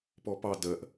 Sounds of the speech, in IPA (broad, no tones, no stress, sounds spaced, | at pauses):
p ɔ p ɑ d ɜ ʔ